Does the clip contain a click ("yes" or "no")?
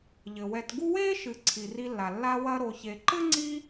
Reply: yes